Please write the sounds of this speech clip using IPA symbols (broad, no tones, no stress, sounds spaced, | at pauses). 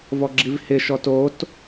v ɔ ɡ͡ǁ i v h ɪ ʃ ɔ t o t